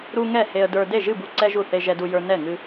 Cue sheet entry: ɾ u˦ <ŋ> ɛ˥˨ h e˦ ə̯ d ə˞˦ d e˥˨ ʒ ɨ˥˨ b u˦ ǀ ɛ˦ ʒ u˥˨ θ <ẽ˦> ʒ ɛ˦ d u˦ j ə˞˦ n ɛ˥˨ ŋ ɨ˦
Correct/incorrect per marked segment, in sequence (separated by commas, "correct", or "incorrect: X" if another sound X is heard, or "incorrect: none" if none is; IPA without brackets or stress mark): correct, incorrect: e˦